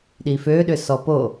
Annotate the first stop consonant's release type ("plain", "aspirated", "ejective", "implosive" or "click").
implosive